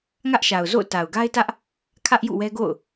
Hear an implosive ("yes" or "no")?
no